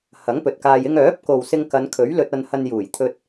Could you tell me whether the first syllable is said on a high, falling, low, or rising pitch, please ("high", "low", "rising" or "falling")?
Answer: rising